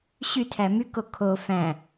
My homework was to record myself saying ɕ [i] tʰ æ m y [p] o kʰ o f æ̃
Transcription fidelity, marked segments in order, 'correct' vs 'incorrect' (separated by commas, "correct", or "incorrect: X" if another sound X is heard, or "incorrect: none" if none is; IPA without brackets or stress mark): incorrect: y, incorrect: k